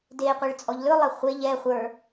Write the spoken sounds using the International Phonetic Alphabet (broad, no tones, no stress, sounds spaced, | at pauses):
d e qʷ ɛ ɭ t͡sʼ ɔ ʎ l ɵ lˠ ɛ χʷ e ʎ ɛ χʷ ə˞